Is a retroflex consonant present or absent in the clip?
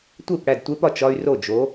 present